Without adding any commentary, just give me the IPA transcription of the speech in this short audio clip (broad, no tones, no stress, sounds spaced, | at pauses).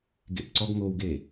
ɡ ḛ p ǀ ɔ ɡ ŋ o w ɡ e